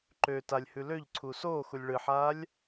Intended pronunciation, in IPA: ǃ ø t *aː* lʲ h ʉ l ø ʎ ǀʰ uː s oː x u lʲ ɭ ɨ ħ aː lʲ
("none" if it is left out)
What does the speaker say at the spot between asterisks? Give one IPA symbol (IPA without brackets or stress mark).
a